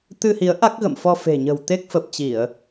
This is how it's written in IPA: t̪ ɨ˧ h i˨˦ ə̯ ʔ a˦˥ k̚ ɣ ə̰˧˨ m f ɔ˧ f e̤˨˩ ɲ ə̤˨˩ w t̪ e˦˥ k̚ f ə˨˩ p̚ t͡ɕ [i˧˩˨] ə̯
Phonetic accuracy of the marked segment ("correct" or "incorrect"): correct